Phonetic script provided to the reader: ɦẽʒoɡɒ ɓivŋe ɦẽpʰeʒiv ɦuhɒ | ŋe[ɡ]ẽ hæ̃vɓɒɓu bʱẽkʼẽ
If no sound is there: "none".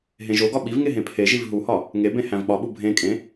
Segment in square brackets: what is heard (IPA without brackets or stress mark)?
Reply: b